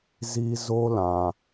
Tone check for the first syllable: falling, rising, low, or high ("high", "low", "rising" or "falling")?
high